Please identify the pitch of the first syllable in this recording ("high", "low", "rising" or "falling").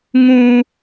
high